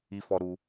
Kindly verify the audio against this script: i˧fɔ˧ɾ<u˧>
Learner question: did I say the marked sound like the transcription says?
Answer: yes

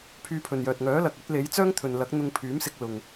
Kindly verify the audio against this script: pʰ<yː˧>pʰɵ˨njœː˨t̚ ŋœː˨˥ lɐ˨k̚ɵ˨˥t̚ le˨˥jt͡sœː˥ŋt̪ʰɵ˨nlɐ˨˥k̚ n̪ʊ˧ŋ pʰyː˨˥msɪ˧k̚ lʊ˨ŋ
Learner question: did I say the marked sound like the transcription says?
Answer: yes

